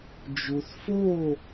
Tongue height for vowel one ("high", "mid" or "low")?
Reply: high